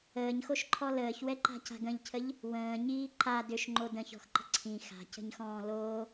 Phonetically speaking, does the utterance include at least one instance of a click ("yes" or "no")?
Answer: yes